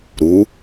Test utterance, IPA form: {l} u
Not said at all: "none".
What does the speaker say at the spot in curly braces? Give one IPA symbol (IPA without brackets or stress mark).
ɾ